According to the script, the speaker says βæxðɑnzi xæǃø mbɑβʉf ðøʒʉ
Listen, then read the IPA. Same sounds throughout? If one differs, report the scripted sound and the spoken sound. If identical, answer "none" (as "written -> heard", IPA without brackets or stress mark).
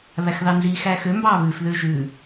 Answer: ǃ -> x